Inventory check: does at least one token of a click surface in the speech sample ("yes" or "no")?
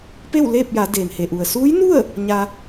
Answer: no